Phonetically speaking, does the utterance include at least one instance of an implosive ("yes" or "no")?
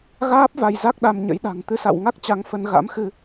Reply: yes